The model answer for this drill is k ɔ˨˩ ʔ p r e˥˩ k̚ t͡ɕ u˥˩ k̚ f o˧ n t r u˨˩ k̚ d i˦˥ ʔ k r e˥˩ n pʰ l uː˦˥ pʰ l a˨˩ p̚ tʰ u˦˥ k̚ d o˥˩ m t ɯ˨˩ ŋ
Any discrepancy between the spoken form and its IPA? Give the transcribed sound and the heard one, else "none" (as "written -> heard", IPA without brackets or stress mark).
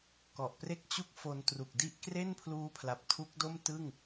ɯ˨˩ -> ɯ˥˩